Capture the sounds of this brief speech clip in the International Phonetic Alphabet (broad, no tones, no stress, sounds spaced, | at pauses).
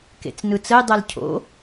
k ḛ t͡s n ɯ t͡s ə j dˤ ɛ l cʰ o̰